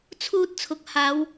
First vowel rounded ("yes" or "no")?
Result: yes